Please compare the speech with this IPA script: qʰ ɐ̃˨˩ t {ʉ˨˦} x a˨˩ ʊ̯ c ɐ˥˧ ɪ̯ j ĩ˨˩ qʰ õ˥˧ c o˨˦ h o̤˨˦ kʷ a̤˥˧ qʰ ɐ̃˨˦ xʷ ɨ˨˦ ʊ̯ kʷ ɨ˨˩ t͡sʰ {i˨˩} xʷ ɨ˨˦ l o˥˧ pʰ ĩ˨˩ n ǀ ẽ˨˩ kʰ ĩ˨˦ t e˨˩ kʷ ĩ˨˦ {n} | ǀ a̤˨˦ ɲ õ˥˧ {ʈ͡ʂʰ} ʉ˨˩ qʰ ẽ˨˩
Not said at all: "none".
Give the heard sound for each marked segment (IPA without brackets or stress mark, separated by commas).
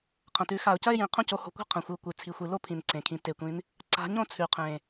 ʉ˨˦, i˨˩, n, t͡sʰ